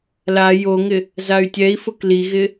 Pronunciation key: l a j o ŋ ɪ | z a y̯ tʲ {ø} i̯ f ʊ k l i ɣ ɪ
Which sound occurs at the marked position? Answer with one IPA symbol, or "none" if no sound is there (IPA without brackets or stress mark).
ɛ